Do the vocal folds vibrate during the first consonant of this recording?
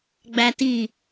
yes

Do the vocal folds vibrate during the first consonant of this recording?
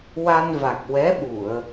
yes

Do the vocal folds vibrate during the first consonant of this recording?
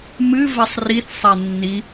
yes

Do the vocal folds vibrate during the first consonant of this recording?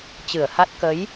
no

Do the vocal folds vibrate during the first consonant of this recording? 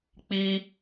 no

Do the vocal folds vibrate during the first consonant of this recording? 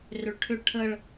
yes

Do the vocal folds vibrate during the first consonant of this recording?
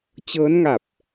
no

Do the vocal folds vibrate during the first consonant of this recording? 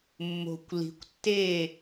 yes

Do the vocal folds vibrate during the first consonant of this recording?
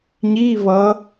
yes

